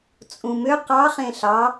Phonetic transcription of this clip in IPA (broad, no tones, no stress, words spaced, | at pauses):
t͡sʼũmø qɑ χẽɬɑ